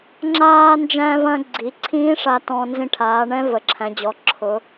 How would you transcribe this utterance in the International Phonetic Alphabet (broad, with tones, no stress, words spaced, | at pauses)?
ŋ͡ǁaː˧nd͡ʒæ̃˧vɐ̃˧ ɡ͡ǀi˩˧ ǀʰĩː˦˥ʂa˧ tɔ̃˧nzĩ˧ʈʰaː˩˧ɳɛ̃˦˥ və˩˧ǁʰæ̃˩˧d͡ʑɔ˩˧ ǁʰʊ˩˧